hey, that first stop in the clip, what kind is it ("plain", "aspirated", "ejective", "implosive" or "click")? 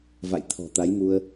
aspirated